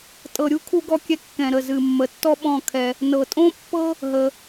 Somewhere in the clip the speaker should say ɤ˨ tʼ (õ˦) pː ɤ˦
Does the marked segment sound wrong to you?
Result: no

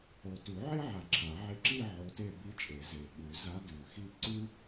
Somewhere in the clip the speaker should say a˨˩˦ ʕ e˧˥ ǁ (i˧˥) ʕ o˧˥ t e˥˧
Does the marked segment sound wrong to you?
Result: yes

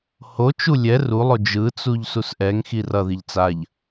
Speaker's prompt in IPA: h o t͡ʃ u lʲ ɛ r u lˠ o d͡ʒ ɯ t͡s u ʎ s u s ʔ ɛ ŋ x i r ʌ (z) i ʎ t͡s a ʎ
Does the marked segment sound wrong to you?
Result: yes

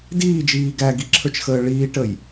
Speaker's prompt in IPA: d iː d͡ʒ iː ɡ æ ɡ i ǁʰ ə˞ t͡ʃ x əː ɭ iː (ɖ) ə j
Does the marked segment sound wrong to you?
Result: yes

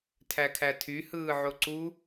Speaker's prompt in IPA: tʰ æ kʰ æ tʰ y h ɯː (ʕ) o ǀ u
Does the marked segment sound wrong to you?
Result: no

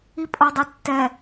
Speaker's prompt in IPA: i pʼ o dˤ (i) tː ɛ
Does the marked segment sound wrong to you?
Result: yes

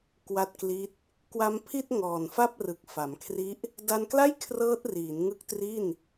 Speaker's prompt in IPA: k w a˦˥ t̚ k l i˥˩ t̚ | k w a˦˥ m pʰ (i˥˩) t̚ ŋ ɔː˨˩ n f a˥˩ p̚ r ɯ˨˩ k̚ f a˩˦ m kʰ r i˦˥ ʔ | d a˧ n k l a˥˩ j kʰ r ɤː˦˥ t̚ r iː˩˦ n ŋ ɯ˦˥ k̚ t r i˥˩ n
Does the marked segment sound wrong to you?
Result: no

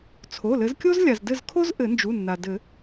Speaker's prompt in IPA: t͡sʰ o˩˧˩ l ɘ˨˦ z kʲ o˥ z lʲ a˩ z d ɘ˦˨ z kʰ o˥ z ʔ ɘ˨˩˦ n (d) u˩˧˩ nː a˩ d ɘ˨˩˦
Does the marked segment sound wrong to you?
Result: yes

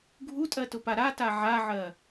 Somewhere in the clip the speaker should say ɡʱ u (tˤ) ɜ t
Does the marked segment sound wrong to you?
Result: yes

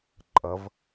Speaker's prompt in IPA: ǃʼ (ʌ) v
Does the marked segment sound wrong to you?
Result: no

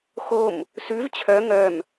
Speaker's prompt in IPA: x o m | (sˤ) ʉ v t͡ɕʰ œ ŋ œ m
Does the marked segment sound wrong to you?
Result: yes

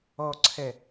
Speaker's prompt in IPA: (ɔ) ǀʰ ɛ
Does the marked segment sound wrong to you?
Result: no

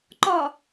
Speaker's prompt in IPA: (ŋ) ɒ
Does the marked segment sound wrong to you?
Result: yes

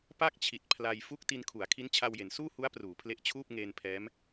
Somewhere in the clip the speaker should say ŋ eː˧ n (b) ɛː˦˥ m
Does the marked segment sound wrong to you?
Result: yes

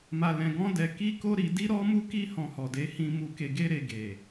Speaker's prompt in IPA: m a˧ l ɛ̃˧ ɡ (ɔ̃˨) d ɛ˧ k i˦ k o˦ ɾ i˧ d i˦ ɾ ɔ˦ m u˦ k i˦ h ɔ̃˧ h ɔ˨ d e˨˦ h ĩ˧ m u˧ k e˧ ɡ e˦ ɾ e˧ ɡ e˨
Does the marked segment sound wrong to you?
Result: yes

